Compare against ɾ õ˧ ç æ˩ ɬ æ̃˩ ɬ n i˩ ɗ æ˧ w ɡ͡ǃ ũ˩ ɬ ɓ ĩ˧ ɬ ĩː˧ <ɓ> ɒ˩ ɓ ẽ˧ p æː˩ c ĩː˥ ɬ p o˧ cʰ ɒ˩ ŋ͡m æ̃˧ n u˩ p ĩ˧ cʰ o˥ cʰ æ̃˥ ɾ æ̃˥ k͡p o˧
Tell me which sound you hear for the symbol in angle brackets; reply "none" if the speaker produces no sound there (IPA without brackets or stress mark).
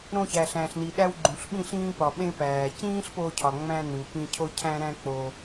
p